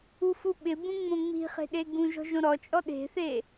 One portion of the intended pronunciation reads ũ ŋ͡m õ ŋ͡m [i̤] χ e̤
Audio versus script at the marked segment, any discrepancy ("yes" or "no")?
no